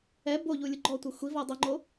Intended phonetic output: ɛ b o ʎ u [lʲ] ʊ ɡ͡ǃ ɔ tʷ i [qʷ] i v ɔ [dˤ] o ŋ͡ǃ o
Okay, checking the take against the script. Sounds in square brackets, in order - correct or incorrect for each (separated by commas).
correct, incorrect, correct